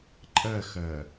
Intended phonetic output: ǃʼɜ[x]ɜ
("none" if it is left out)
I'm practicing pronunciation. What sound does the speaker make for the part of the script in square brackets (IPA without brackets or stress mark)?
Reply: x